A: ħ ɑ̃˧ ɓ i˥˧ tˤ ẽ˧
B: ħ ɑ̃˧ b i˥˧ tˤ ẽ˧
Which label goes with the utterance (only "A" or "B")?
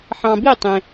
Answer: B